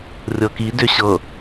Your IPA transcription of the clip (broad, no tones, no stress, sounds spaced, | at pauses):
rʲ ɤ k i d ʏ ɕ ɤ